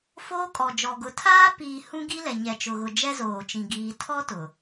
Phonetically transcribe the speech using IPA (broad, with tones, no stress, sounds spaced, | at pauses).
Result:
f oː˦ kʼ ɔ˨ d͡ʒ ɔ˨ ɡ ʊ˨ tʰ aː˦ p iː˨ h ũ˦ ɡ i˦ l ɛ˨ ɲ ɛ˨ t͡ʃ ʊ˨ ɣ ʊ˨ d͡ʒ ɛ˦ z oː˨ t͡ʃ ĩ˨ ɡ iː˨ tʰ ɔ˦ t ʊ˨